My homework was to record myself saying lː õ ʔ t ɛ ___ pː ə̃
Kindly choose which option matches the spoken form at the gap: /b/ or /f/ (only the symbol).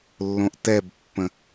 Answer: b